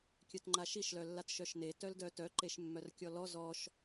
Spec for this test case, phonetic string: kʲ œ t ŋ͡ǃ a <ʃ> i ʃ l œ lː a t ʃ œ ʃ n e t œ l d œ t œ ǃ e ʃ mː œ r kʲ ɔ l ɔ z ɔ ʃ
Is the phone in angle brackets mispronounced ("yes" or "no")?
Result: no